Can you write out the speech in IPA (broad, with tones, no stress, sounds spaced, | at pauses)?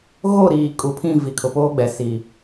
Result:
ɣ o˦˨ ɾ iː˨ kʼ u˨ pʰ ĩ˦˨ v i˨ kʰ ʊ˨ p oː˦ ɡ͡b ɛ˨ s i˨